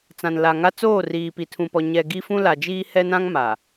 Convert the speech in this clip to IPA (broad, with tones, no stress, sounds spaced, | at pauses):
t͡s ã˨ n l a˨ ŋ a˦ t͡s oː˦˨ r iː˨ p i˨ tʰ ũ˨ p ɔ˨ ɲ ɛ˨ ɡ i˦ f ũ˦ l a˨ d͡ʒ iː˦ h ɛ˦ n ã˦ ŋ m a˨